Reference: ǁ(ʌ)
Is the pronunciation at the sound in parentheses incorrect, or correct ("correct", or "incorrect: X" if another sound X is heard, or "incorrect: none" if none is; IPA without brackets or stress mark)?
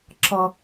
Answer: correct